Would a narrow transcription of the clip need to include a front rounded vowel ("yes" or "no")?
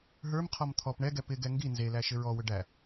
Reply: yes